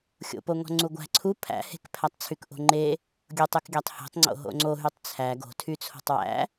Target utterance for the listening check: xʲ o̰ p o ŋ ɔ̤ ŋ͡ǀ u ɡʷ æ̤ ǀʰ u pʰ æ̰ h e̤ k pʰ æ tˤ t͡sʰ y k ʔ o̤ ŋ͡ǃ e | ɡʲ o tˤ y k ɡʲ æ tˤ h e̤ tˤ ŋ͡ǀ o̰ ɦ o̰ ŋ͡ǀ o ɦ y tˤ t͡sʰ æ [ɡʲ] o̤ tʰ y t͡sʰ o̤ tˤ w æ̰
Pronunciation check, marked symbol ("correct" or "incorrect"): incorrect